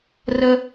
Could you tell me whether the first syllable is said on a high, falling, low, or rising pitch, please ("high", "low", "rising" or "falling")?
high